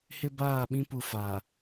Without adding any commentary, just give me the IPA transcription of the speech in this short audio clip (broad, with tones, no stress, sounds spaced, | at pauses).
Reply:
h ɪ˦ b aː˦˨ ɓ ĩ˦ p u˨ f aː˨